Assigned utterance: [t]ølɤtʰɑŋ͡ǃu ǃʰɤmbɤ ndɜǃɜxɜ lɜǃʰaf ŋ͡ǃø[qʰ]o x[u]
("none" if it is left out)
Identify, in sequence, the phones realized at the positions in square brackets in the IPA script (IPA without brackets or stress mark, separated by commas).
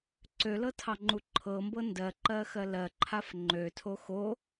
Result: ǀ, tʰ, o